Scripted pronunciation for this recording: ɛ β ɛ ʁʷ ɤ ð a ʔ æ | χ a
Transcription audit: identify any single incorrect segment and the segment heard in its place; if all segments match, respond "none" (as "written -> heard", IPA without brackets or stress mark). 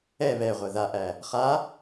none